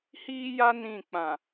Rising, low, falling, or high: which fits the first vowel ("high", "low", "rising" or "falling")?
high